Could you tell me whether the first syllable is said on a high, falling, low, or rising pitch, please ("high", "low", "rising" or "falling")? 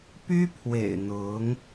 high